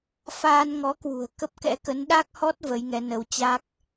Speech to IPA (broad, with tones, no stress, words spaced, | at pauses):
faː˧nŋɔ˨˦kwṳ˨˩ə̯ kə˦˥p̚kɛ̰˧˥kə˨˦n ɗa˦˥k̚hɔ˦˥t̚ və˨˦jŋɛ˨˦nə˨˦w t͡ɕa˦˥k̚